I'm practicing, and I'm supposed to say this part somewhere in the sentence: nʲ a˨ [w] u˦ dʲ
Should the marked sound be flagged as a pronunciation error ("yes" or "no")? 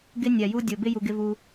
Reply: yes